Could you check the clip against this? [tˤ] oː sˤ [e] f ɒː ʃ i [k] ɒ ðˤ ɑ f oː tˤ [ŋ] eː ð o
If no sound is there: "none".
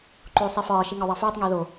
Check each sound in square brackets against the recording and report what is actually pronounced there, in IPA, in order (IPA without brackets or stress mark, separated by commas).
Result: ǃ, e, ŋ, ŋ